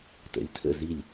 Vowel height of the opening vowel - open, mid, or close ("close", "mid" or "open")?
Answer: mid